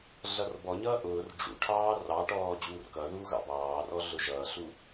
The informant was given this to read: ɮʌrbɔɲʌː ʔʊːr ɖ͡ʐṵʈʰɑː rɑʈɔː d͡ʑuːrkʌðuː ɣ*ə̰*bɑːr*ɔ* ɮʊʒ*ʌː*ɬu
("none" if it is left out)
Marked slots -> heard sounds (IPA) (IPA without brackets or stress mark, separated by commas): ɑ̰, ɔ, ʌː